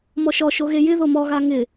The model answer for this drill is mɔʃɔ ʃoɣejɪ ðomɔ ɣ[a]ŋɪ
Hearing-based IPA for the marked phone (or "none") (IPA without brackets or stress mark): a